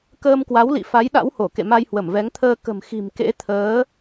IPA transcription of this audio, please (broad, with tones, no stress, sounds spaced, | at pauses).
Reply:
k əː˧ m k w a˨˦ w l ḭ˧˨ f a˨˦ j ɗ a̰˧˥ w h o˧˩ k ḛ˧˨ m a˧ j h w ə˧˩ m v ɛ˨˦ ŋ t̪ʰ əː˧ k ə̤˨˩ m x i̤˨˩ m k ḛ˧˥ t̪ʰ əː˨˦